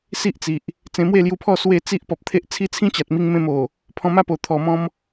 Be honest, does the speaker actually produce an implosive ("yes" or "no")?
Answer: no